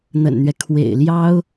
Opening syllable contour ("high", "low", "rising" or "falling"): low